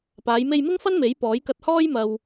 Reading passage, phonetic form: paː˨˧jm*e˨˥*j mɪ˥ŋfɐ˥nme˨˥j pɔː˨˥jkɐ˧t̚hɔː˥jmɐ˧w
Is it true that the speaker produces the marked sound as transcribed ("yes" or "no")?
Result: no